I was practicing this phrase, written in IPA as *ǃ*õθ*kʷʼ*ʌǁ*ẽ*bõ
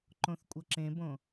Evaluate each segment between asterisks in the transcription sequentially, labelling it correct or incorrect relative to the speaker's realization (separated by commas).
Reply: correct, correct, correct